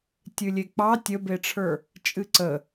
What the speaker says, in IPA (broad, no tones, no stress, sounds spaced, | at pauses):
tʲ ɨ lʲ e k͡p ɑ tʲ ə b e ʈ͡ʂʰ ə˞ | t͡ʃʼ ɨ ǀ ə